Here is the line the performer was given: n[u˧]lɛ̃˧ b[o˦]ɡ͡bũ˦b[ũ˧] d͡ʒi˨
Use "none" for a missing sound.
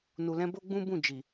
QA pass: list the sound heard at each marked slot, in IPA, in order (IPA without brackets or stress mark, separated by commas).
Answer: u˨, o˦, ũ˦˨